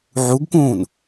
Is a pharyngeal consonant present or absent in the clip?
present